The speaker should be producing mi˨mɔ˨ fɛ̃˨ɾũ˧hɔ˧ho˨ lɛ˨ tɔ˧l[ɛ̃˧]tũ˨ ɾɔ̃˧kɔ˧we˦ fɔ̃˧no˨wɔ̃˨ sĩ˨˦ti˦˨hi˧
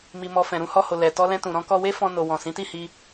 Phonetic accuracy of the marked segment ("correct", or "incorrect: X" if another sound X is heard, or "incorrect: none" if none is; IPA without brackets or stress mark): correct